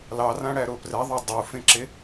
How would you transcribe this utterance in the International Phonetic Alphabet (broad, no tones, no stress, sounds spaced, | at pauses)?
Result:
l ɑ r ã ɽ æ ɾ o p r ɛ ðˤ ɑ dˤ u f ẽ ǁ e